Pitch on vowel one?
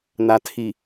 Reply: low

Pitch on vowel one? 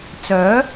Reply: rising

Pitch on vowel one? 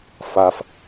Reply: high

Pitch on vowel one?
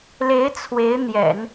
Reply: rising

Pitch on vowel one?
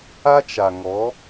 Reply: high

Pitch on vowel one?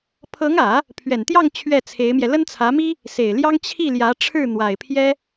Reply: rising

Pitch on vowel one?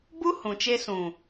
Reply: high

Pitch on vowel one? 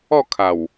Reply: falling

